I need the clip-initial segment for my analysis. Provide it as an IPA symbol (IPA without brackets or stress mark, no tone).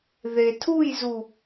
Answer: ð